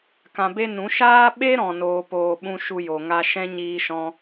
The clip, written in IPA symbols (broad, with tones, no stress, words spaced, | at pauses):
kã˧be˦ nũ˨˦ ʃaː˦ɓe˦ ɾɔ̃˨noː˨poː˨ ɓũ˧ ʃu˦jo˨ŋa˦ ʃɛ̃˦ ɲiː˧ʃɔ̃˧